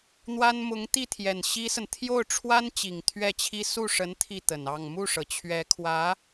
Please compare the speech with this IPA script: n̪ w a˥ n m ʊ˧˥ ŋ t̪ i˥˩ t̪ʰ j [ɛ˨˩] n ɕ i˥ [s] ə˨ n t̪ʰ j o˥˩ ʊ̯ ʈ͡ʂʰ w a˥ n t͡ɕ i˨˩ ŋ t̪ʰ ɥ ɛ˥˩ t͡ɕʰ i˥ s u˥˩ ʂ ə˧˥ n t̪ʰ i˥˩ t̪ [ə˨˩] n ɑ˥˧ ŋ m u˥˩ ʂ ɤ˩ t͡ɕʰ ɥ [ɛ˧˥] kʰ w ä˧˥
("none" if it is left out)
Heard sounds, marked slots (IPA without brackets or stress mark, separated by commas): ɛ˨˩, s, ə˨˩, ɛ˧˥